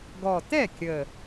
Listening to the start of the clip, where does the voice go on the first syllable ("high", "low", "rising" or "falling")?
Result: low